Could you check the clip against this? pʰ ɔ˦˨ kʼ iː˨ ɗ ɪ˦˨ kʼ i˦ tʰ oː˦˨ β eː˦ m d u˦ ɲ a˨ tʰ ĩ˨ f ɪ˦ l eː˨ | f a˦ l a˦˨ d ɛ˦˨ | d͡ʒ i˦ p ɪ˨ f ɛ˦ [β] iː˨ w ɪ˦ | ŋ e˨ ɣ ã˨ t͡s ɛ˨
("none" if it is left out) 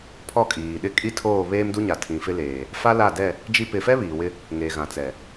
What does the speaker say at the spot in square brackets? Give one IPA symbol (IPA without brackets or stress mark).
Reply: β